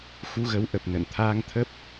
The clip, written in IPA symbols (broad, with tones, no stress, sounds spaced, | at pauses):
x u˧ ɣ ə˨˦ w ʔ ə˨˩ p̚ n ə̰˧˨ n t̪ʰ aː˧ ŋ t̪ʰ ə˦˥ p̚